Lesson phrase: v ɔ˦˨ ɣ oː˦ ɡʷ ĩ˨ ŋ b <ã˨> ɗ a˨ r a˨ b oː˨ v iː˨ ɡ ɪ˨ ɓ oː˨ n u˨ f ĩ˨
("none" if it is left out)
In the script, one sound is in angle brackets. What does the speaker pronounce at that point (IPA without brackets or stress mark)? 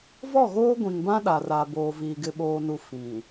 ã˦